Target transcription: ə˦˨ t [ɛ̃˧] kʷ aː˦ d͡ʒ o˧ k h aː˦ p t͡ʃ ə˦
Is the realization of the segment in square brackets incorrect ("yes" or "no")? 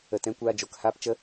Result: yes